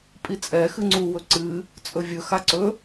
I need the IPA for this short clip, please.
pʼit͡sʼɛxɨ ŋ͡ǀuwɵ ǀɨ | t͡sʼɵvʲɵ xaǀɵ

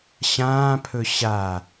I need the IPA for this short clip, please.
ɕãːpʰɵ ɕa

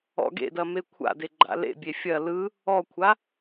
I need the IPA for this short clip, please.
ɔ̰ɡḛdɐme kʷʰa̰de ɡ͡ǃa̰lḛbʲe fʲɐ lɯ | ɔkʷʰa

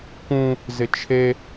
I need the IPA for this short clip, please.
kũ | zɪt͡ʃʰe

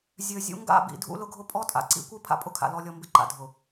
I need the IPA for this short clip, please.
zʲø˨ zʲṵ˦ ŋɡa̰˦˨bḭ˨ dʱṵ˦lʊ˦ɡʱʊ˦ pʼɔ˦tʼa̰˨ǀḭ˦ kʷi˦ pʰa̰˦ pʼʊ˦kʰa̰˨ lɔ˦lʲɔ˦mbɪ˦ǃa̰˨ dʱʊ˨

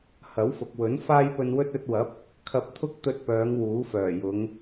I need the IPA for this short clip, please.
hɐ˨˥wfʊ˨k̚wɵ˨˥n faː˥jpɵ˧nwɵ˥t̚ ɵ˧t̚wɐ˨˥p̚ | kʰɐ˧p̚t̪ʰʊ˥k̚t̪ɵ˧t̚pœː˨˧ŋ wuː˨˥fœː˨˩jʊ˨˧ŋ

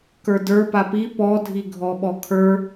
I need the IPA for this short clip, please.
kə˞də˞ papi pɔ dʱiɡʱɔɓɔkʰə˞

